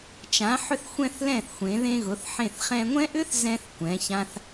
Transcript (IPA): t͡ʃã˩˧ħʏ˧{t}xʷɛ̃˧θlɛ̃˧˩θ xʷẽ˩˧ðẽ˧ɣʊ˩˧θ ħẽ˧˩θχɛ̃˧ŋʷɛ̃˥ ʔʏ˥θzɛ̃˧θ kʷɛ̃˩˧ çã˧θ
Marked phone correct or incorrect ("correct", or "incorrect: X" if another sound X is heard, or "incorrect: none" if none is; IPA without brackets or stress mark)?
incorrect: θ